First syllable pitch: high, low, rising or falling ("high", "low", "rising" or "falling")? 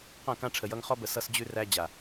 falling